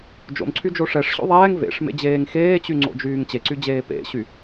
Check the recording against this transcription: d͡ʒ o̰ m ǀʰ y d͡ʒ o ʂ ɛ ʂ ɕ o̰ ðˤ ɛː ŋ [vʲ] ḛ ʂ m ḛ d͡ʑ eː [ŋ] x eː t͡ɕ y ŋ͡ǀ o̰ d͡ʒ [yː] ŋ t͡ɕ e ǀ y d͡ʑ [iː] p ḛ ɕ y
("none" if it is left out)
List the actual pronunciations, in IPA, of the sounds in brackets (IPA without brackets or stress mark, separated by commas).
v, ŋ, yː, eː